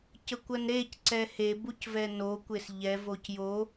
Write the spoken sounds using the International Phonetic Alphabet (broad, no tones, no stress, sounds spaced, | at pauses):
c ə kʷ ɜ n ɾ e c ǀ ɛ h e b u c v ɛ n o kʷ e s ʎ ɛ v o c j o